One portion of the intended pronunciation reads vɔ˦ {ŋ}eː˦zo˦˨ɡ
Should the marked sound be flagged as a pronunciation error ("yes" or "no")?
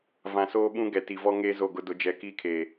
no